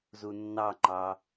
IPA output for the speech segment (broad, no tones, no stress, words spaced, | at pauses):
zunːɑŋ͡ǃɑ